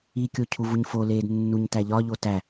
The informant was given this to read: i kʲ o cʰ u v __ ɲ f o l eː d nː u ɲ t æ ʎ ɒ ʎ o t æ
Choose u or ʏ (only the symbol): u